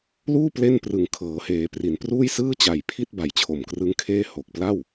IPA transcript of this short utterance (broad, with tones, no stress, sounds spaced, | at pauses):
l uː˥˩ p l e˥˩ n p r ɯ˨˩ ŋ kʰ ɤː˩˦ h eː˩˦ p r i˩˦ n p r uː˥˩ j s ɯː˥˩ t͡ɕ a˨˩ j pʰ i˥˩ t̚ b a˨˩ j t͡ɕʰ o˨˩ m k r ɯ˦˥ ŋ kʰ eː˥˩ h o˨˩ k̚ p l a˥˩ w